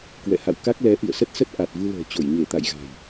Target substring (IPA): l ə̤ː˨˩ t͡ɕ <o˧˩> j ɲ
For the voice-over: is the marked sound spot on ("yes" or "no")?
yes